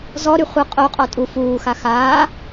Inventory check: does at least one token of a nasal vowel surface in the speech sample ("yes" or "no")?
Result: no